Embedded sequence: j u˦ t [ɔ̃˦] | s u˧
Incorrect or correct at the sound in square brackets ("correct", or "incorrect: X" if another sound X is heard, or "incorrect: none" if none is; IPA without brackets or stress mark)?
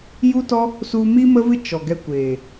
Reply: incorrect: ɔ˦